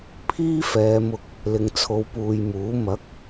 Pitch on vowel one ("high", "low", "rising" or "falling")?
high